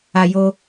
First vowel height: low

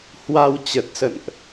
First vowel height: low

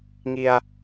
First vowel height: high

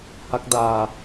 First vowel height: low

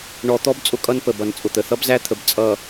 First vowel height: mid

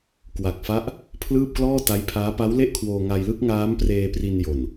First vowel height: low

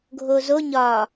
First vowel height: mid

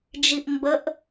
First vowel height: high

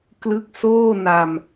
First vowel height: high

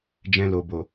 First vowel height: mid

